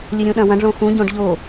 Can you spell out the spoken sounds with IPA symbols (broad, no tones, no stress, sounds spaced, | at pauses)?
lʲ ɨ ɾʲ ũ ɗ ɐ̃ w ɐ̃ ɖ ɭ õ x ũ ɟ õ ɖ ʎ o